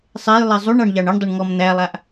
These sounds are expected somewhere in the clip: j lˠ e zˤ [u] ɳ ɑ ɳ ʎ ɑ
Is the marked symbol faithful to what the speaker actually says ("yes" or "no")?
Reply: yes